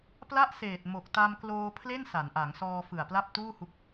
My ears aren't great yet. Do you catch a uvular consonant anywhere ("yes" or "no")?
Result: no